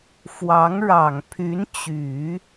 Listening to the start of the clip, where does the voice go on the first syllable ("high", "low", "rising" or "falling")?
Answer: rising